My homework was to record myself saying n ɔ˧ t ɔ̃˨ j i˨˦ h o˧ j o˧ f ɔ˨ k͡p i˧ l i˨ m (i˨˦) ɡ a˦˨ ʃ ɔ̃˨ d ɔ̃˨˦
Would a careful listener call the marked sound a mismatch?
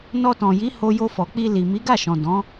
no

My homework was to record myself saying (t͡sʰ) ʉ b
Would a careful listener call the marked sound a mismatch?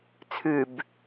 no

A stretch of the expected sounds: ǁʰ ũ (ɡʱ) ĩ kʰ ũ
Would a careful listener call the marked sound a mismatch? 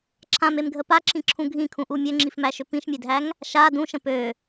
no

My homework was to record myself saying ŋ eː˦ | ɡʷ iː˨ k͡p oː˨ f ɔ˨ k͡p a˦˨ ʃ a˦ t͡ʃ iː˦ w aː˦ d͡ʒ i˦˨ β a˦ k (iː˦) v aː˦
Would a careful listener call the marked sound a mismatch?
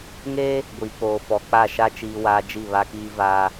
no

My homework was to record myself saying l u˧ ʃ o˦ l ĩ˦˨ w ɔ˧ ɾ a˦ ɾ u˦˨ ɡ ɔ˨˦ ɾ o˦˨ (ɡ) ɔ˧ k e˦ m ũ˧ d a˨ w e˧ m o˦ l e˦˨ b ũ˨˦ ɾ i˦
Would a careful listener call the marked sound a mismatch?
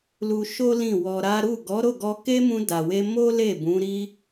no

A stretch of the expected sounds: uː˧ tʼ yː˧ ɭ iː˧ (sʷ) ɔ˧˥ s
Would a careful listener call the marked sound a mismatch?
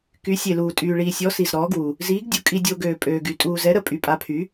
yes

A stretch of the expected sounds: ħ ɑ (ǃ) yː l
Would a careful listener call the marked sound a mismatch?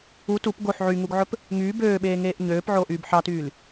yes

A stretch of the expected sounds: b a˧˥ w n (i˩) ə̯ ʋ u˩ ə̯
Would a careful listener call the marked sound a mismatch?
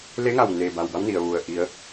no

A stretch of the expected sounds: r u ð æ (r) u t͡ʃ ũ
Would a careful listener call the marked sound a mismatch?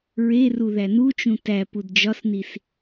yes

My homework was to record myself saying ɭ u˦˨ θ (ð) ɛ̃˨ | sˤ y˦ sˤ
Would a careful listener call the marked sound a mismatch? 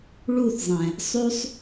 yes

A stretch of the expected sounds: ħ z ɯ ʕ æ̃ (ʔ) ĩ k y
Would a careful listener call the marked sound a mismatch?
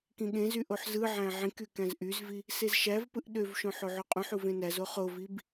yes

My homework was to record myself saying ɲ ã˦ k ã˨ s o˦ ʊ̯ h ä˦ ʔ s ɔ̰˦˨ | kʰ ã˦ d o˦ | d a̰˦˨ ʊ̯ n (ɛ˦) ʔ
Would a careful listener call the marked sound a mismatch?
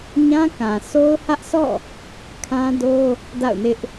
yes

